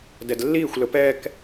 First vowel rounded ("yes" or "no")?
no